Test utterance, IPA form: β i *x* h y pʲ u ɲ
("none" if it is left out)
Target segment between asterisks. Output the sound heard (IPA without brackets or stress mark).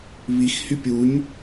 x